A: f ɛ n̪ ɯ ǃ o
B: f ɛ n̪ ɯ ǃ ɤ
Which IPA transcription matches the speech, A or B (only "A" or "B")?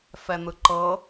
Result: B